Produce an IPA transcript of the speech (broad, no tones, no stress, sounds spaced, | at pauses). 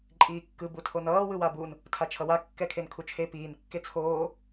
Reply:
ǃʼ iː kː ɯ b u tʰ o n ʌː w ɯ w a b u n | tʰ a t͡ʃʰ ʌ w a kː ɛ kʰ e n kʰ u t͡ʃʰ e p iː n kː e t͡sʰ oː